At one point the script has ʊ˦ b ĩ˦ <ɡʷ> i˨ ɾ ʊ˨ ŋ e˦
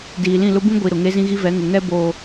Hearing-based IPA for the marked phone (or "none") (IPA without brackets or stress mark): ɡʷ